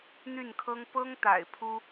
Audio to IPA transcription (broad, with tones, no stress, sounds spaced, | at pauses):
n̪ y˥˩ n kʰ ɤ˥ ŋ p ɤ˥ ŋ t̪ a̰˨˩ ɪ̯ pʰ u˥